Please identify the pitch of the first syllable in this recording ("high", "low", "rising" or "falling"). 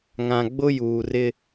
low